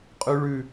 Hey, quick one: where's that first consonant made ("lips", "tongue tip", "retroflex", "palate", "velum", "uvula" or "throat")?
uvula